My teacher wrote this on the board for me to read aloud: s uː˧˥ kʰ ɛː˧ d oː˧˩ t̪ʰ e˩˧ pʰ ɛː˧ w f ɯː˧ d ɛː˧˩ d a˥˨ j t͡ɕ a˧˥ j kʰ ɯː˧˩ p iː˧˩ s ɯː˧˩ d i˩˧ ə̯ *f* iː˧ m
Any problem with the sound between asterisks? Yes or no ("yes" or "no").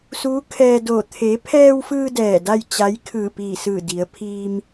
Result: yes